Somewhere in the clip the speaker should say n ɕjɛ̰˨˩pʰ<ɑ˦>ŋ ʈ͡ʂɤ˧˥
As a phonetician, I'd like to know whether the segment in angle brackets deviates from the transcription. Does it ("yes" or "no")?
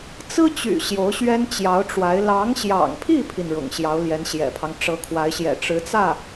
no